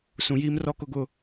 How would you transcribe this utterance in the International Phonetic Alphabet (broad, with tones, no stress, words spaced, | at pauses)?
sũ˨jiː˦mrɔ˦kʊ˦ ɡʊ˦